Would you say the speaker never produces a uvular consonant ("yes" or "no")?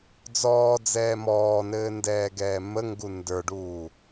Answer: yes